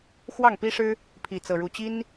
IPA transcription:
xwɑ˥˩ŋpi˥ʂɻ̩˥ | pʰi˥˧t͡sɤ˥˧ɻu˥˩ t͡ɕi˥n

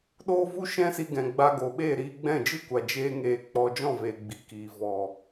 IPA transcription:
ɗoː˦ vu˦ʃɛ̃˦si˧ ɡɛ̃˨ɡ͡ba˧ɡo˨ɓeː˦˨ ɾiː˧ɡ͡bɛ̃˦˨d͡ʒɨ˦kʷa˨ d͡ʒeː˦ŋeː˧ k͡pɔ˧ d͡ʒɔ̃˦˨veː˨ ɡ͡bi˨kiː˨ vɔ˨

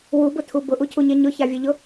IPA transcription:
wubʊtʰu bʊʔucʰuɲe ɲʊçavʲeʎʊ

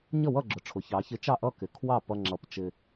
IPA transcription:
ɲʌ˥˨wʌ˥˨ɡ͡ǁʊ˩˧ʈ͡ʂʰʊ˩˧ çɑ˩˧çɪ˨˥ t͡ʃɑ˥˨ʔʌ˥˨kɪ˩˧ kʰwɑ˥˨pʌ˧ŋ͡ǁʌ˨˥pt͡ʃɪ˧

